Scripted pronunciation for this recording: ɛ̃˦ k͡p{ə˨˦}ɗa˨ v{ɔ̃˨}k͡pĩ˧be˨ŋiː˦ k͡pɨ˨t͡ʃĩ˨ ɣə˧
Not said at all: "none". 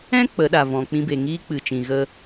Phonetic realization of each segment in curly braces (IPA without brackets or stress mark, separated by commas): ə˨˦, ɔ̃˨